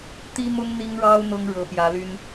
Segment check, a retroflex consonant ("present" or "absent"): present